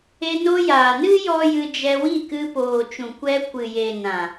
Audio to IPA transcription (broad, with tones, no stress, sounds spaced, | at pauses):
e˧ n o˧ j aː˨ n ɨ˦ j ɔ˦ j ɨ˧ d͡ʒ ɛ˧ w i˦˨ k ɨ˧ p oː˨ t͡ʃ ũ˨ kʷ ɛ˧ kʷ ɨ˨ j e˨ n ã˨